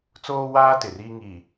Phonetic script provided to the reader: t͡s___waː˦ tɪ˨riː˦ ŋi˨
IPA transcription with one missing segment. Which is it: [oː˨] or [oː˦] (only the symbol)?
oː˦